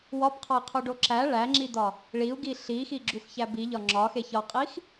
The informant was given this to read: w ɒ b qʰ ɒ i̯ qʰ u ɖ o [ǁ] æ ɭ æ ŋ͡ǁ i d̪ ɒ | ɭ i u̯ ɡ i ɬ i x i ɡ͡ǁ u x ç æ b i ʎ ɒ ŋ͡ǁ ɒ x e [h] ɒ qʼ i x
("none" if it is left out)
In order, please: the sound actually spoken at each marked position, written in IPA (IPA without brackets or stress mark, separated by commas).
ǁ, ç